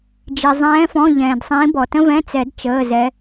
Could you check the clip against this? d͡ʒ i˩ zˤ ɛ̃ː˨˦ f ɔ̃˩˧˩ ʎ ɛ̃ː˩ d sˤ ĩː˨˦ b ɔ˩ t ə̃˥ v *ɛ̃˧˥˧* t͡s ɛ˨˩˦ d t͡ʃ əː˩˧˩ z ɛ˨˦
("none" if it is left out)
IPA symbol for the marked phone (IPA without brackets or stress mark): ɛ̃˧˥˧